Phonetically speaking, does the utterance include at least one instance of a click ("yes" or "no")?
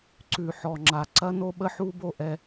yes